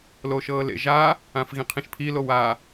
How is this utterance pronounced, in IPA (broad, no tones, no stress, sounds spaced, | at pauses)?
l o ʃ ɤː l ḛ ʒ a | ã f ɣ ĩ qʰ ĩ ʃ pʰ i l o w a